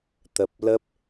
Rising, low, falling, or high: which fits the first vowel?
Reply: low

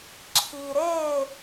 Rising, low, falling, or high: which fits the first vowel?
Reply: low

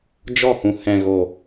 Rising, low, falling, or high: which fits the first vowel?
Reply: falling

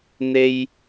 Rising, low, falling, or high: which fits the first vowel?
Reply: high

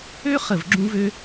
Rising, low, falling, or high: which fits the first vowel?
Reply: high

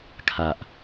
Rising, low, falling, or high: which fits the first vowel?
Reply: low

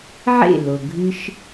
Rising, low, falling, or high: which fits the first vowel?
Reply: falling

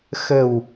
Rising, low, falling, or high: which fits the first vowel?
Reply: low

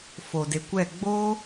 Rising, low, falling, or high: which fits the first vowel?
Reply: low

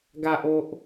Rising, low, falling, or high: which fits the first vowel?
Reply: low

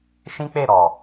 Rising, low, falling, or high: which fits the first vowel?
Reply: high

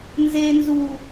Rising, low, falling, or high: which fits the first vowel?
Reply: low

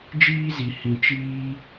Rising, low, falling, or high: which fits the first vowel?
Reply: high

